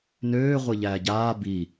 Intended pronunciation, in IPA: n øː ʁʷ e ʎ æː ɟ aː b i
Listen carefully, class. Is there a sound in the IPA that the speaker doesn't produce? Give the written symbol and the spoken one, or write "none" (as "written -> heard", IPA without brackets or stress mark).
none